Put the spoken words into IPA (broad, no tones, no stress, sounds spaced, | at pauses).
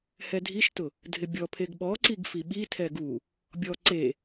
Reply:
h ɛ dʱ i ʃ t ʊ | dʱ ɪ bʲ ɔ pʰ e ɡ ɓ ɔ ǀ i ɡ f i ɓ i tʰ ɛ ɡ u | bʲ ɔ ǀ e